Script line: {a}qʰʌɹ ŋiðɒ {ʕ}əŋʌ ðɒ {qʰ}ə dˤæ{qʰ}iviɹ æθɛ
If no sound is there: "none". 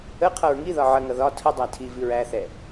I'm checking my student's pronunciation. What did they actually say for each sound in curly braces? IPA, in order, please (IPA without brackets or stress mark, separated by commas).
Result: ə, ʕ, tʰ, tʰ